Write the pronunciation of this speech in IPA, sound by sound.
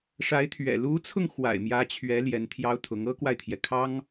ʂa˧˥ɪ̯t̪ʰɥɛ̰˨˩ lu˧˥t͡sʰʊ˧ŋ xwa̰˨˩ɪ̯mjä˧˥t͡ɕʰɥɛ˧˥ ljɛ˧˥nt̪ʰjɑ˥ʊ̯t̪ʰʊ˧˥ŋ ɤ˥kwa˨ɪ̯t̪ʰjɛ˩ kʰɑ˥ŋ

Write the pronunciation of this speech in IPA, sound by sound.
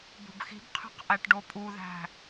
bo̤bxi̤bqʰe̤q ʔæʈɖopʼuðæ̤

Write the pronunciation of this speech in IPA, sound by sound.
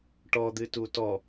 ʈɔd̪ɨtu tɔ

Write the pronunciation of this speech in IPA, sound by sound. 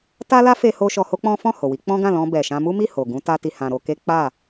ta˦la˦fe˧ho˧ ʃɔ˧ho˦k͡pɔ̃˦ fɔ̃˦˨ ho˨wi˨˦ k͡pɔ̃˦ɡã˦˨lɔ̃˧ bɛ˨ʃã˧ mu˦mi˦˨ ho˨ɡũ˧ ta˦ti˧hã˧ ɾo˧ke˦ k͡pa˦˨

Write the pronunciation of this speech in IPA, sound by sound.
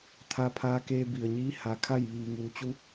t̪ʰa˧pʰaː˧keː˧ bi˩ə̯ɲiː˧˥ ha˩kʰa˥˨j ʋiː˩ŋuː˩˧t͡ɕu˧˥

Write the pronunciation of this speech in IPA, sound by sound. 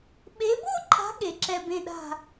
ɓe˨˦bo˥˧ǃʼa̤˨˦ ɠe˨˦ǁɛ˥˧ bẽ˥˧ɗa̤˥˧

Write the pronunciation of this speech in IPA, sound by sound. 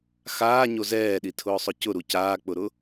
xaːɲo zɛːɗitʰʊːsˤʊ cʊɾu caːk͡pʊɾʊ

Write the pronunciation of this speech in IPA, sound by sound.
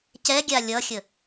cɛɡʲa lʲʌxʲə

